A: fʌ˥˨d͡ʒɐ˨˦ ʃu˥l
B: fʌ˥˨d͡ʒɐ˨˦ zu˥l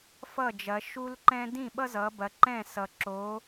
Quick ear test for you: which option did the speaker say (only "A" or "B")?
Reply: A